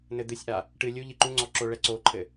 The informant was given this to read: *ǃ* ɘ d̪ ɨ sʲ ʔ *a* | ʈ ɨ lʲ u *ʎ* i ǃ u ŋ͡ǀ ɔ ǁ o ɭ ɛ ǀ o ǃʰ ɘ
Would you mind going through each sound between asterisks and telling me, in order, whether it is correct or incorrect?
incorrect, correct, correct

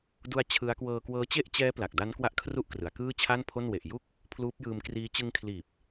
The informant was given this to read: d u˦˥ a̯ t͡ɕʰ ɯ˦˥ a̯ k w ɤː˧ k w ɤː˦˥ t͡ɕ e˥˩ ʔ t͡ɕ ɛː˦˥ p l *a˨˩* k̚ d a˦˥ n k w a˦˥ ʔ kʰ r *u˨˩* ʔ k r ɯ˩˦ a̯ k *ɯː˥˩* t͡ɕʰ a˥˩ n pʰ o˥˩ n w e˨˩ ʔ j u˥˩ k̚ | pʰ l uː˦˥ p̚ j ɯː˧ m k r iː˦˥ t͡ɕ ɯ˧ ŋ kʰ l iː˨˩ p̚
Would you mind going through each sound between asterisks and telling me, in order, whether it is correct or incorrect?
correct, incorrect, correct

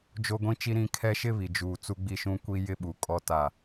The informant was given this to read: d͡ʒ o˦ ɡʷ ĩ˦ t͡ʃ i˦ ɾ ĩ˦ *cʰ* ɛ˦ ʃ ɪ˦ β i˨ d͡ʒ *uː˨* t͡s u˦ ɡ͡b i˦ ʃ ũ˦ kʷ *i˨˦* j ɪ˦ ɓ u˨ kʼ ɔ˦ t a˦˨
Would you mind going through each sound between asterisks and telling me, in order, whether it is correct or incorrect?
incorrect, correct, incorrect

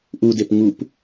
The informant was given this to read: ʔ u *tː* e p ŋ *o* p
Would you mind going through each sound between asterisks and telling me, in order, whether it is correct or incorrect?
incorrect, incorrect

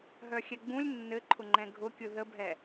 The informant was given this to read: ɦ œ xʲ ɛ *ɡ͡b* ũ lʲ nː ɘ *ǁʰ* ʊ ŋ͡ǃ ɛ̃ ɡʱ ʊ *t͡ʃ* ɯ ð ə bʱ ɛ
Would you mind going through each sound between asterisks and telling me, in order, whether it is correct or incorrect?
correct, incorrect, incorrect

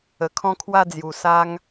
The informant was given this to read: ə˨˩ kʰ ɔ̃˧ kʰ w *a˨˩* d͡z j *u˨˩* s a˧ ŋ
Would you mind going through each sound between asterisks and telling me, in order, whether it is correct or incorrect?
incorrect, correct

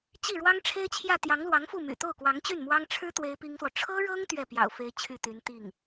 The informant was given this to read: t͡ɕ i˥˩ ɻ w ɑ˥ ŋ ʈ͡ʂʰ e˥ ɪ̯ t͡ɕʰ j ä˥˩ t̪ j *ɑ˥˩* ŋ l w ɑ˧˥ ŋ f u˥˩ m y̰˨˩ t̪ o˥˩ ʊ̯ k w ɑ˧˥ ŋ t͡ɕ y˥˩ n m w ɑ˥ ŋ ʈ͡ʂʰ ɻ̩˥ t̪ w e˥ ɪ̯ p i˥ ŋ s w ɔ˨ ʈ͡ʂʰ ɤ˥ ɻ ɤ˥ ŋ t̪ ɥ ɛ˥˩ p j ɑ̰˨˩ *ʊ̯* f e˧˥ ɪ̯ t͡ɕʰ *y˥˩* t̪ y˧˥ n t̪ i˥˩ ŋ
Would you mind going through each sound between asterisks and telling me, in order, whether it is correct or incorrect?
incorrect, correct, correct

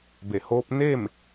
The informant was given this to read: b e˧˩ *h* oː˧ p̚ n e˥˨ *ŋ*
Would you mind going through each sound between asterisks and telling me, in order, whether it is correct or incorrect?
correct, incorrect

